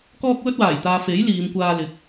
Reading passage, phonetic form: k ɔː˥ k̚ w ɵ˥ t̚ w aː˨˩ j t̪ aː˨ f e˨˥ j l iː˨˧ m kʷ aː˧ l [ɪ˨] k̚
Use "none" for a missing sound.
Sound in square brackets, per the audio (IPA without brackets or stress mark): ɪ˨˥